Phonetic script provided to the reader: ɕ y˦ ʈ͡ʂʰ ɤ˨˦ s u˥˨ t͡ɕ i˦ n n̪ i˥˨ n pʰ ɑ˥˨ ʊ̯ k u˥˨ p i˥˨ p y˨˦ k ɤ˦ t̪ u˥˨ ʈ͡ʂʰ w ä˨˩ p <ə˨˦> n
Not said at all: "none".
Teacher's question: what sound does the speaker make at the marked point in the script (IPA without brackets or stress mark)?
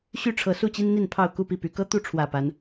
a˨˦